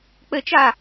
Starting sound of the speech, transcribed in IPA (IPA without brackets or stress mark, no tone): k͡p